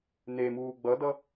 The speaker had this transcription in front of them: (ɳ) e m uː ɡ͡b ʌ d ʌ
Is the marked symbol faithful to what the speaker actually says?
no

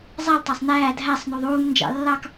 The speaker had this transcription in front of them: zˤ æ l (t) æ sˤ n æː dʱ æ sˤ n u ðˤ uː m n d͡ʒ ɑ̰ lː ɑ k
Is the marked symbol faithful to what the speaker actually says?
no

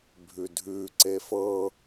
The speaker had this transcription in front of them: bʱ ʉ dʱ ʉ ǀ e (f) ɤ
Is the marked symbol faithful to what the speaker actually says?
yes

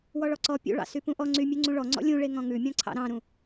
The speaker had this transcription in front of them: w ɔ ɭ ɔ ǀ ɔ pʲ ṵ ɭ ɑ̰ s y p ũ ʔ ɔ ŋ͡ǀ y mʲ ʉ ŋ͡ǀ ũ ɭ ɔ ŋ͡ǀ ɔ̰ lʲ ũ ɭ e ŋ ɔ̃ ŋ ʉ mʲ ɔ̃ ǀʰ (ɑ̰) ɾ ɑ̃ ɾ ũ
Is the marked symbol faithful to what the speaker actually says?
yes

